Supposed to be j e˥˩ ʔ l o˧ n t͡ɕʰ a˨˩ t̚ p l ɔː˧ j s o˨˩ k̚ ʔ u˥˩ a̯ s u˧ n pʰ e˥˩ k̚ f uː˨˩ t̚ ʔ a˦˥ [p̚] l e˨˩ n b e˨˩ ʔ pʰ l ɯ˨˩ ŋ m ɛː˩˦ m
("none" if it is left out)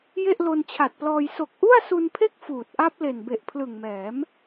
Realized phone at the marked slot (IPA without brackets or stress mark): p̚